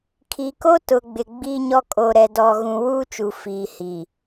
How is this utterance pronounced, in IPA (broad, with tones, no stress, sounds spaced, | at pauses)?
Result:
kʰ i˨ k o˦ t ʊ˨ ɡ͡b ɪ˨ ɡ͡b i˦ ɲ ɔ˦ kʼ o˨ ɾ ɛ˨ d ɔ˨ ɣ ũ˨ w uː˦ t͡ʃ u˨ f iː˨ h i˨